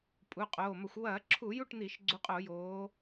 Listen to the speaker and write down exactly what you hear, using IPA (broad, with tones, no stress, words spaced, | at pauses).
pʼu˩˧˩qʼoː˩˧˩mɐ˧˩˧xʷ wɐː˧˩˧ǁʰu˧˩˧ ju˥˨ʈn̪i˧˩˧ʃ ɡ͡ǀu˨˦qʼo˧˩˧joː˨˦